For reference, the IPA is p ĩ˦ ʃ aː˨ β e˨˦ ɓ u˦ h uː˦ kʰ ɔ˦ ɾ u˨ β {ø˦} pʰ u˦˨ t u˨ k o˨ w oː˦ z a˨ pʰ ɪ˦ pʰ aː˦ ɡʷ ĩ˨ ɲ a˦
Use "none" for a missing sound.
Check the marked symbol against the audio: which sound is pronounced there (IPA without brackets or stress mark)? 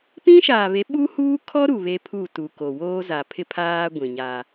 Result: e˦